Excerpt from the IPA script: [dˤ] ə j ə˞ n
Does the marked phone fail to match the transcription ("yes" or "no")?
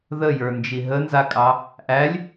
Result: yes